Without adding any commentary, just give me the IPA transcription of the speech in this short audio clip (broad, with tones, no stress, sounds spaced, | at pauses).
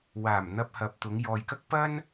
w aː˨˩ m n̪ ɐ˧ p̚ h ɐ˨ p̚ t̪ ʊ˨˧ ŋ j ɔː˨ j k ɐ˥ k̚ p ɐ˥ n